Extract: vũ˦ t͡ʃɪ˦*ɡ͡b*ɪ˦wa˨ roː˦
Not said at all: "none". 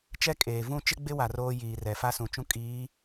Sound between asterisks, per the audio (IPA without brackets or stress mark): ɡ͡b